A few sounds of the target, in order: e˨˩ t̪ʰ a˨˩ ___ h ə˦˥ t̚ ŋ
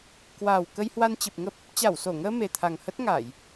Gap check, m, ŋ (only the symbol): ŋ